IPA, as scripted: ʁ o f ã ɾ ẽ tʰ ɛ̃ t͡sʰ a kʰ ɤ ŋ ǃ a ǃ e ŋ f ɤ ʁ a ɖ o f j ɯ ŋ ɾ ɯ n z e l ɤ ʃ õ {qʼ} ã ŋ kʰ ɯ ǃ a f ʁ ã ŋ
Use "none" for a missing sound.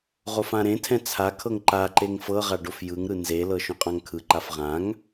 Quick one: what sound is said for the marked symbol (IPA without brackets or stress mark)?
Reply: qʼ